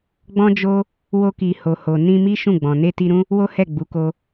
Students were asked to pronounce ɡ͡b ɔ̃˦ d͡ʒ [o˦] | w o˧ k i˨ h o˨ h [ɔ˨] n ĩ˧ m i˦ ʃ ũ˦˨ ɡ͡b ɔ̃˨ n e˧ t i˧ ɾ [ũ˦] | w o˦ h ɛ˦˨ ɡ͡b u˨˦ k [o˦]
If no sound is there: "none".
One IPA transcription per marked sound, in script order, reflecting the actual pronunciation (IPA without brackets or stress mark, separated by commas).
o˦, o˨, ũ˦, o˦